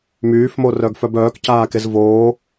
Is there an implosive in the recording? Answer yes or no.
no